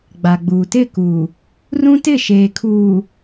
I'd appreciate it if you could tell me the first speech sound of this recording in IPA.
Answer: ɡ͡b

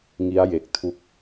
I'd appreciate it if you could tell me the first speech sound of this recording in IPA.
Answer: ŋ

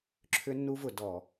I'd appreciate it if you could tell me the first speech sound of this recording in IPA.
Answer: ǁʰ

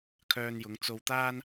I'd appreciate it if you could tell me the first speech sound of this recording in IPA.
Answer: kʰ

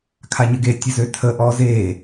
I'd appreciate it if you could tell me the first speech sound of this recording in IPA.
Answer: kʰ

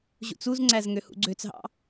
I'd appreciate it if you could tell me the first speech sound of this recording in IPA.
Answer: ʑ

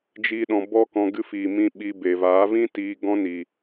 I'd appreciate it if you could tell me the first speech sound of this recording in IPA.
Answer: d͡ʒ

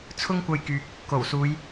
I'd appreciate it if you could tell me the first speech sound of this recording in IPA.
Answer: t͡sʰ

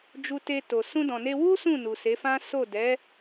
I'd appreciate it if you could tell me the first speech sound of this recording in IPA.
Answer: d͡ʒ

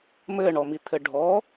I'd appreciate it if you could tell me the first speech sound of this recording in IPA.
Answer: m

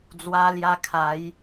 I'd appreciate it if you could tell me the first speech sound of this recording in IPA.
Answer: d͡z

